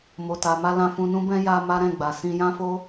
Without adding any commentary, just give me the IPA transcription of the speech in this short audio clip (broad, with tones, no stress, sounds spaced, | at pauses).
m o˨ t a˨ m a˧ l ã˧ f ũ˧ n ũ˦ b ɛ̃˦ j a˧ m a˦ ɾ ɛ̃˦˨ ɡ͡b a˨ s ĩ˧ j ã˦ f o˦